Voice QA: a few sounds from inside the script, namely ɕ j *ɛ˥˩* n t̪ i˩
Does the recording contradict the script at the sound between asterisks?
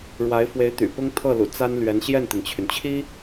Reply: no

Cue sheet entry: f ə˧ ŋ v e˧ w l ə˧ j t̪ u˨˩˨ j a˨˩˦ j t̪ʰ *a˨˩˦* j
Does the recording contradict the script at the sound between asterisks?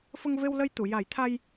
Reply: yes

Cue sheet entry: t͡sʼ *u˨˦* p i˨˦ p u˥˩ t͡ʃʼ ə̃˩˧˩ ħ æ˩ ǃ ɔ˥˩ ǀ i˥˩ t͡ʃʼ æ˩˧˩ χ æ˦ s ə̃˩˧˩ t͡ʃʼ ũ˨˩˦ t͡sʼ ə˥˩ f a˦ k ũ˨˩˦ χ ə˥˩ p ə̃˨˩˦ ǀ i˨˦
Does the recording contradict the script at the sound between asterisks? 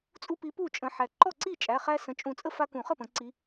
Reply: yes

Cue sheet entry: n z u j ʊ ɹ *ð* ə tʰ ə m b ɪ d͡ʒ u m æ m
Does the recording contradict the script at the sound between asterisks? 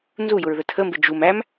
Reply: no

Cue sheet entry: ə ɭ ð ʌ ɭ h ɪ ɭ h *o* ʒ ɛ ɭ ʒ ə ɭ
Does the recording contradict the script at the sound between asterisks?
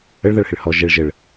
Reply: yes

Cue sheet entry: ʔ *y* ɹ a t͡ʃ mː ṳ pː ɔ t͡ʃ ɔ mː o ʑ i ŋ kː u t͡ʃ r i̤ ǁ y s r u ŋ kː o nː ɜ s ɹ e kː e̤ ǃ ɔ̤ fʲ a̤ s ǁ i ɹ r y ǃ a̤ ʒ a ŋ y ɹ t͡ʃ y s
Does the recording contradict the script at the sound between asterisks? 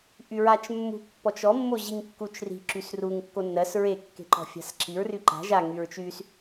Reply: no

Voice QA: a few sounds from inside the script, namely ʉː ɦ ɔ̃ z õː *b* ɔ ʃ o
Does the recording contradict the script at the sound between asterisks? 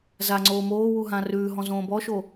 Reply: no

